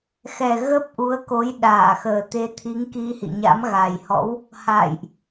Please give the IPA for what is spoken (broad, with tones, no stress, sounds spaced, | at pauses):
x ɛ˨˩ ɣ ə˦˥ p̚ ʔ u˨˦ ə̯ k o˨˦ j ɗ aː˧˩ x əː˨˩ t̪ e˨˦ t̪ʰ i˨˦ ŋ k i˧ h ḭ˧˨ ɲ a̰˧˥ m ɣ a˨˩ j h ɔ̰˧˥ w | h a̰ː˧˨ j ʔ